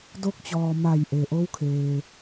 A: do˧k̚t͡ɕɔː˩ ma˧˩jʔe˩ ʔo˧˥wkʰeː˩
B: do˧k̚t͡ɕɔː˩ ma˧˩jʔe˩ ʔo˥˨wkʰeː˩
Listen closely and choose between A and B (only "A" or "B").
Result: A